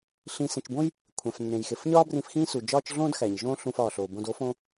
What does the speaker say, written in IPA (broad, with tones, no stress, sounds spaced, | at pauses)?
ɬ ĩ˨ s ẽ˨ t͡ʃ b õ˥ j | kʷʰ æ̃˩ f nː ẽ˩ j x e˩ f ɲ ɒː˥ b r ĩ˨ f x ĩː˦ s u˩ d͡ʒ ɒː˦ t͡ʃ ɮ õː˥ d x æ˩ ɲ ʒ õː˦ ɬ ũ˨ f ɒː˩ ɬ oː˩ b õ˨ d o˦ f õ˦